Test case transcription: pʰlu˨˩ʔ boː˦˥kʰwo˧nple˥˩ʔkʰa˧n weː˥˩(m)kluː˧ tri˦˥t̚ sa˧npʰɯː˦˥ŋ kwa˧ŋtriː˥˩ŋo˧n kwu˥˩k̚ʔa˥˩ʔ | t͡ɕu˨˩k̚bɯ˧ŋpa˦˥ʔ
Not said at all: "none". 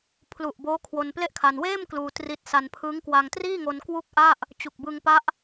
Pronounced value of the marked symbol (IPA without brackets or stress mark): m